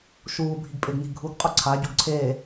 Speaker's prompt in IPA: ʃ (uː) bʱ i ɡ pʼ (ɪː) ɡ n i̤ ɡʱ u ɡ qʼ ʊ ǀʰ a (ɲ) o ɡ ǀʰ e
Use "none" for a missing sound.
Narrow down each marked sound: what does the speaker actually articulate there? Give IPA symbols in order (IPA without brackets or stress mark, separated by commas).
uː, ɪ, ɟ